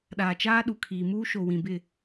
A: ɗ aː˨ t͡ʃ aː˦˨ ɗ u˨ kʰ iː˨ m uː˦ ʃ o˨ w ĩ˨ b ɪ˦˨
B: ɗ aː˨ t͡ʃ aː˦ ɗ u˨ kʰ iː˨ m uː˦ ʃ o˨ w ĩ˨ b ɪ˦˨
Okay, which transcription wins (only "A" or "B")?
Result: B